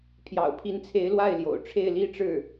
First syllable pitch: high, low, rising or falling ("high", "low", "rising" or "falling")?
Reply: low